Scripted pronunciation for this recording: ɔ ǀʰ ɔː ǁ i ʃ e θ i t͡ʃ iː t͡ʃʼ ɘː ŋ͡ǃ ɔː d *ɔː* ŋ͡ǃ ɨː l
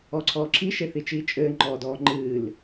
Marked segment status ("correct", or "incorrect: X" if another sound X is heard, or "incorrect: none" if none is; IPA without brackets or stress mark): correct